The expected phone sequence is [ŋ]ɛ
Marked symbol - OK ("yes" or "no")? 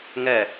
yes